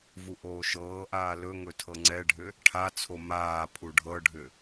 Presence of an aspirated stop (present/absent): present